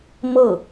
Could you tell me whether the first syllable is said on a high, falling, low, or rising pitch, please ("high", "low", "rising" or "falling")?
falling